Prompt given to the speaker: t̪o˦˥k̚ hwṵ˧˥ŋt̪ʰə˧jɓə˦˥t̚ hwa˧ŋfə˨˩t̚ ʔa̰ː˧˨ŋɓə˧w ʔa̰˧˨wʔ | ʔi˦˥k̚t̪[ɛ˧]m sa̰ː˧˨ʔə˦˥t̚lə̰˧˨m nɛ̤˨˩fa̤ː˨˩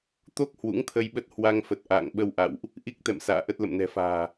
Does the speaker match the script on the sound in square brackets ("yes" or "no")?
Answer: no